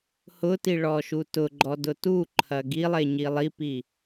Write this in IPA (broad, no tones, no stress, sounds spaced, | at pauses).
h ʊ t i ɭ ɔ ʃ u t ʊ ɡ͡ǃ ɔ d ʊ t u ǃʰ ɐ ɡ i lˠ e ɲ i lˠ i p i